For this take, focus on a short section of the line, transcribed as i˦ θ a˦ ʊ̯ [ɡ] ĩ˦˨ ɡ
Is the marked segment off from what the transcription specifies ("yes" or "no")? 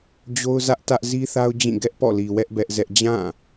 yes